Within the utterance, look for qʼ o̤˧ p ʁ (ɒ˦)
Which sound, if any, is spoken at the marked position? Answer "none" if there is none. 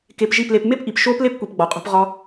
ɒ˧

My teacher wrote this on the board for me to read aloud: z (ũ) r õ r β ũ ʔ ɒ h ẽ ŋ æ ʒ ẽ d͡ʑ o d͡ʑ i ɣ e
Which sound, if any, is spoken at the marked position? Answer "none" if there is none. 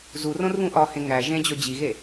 u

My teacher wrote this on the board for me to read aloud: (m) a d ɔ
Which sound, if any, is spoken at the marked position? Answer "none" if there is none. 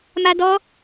m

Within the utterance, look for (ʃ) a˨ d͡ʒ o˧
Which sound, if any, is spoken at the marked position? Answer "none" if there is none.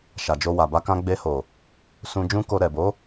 ʃ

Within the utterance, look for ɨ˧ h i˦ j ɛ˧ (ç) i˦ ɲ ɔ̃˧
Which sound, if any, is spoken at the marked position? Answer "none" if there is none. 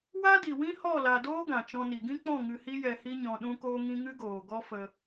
h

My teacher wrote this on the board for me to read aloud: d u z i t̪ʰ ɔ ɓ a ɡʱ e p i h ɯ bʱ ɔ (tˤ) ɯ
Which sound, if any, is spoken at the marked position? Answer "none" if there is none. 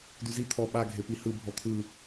t̪ʰ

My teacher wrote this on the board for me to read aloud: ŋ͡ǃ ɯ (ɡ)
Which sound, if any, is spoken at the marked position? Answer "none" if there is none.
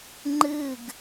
ɡ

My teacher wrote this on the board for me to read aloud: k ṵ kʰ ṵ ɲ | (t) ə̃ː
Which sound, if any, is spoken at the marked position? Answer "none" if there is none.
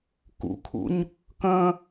k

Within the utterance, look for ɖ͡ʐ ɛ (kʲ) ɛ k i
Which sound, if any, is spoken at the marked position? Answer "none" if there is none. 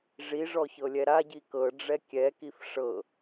kʲ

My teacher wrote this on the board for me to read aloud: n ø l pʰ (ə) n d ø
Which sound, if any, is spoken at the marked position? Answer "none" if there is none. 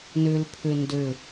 ø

